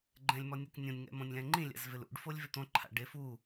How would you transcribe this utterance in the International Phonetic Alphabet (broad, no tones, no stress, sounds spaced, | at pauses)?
ɡ͡ǃ ɛ̃ lʲ m ɔ nʲ ɛ k nʲ õ nʲ ŋ ɛ̰ m õ nʲ l ɛ̃ ŋ͡ǃ ĩ lʲ a̰ z v ɪ l ṵ ɖ f o lʲ v ɪ t̪ õ ǃʰ a̰ ɖ e f u